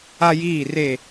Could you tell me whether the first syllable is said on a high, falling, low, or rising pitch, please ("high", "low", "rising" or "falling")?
high